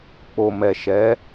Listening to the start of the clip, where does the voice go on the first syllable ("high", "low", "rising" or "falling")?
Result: low